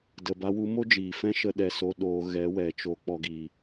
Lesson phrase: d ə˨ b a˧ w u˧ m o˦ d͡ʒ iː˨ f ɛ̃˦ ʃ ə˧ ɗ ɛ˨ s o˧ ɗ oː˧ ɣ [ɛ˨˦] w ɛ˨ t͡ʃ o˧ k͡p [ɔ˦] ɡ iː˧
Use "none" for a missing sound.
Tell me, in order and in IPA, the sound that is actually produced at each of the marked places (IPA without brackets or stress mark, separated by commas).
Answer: ɛ˨˦, ɔ˦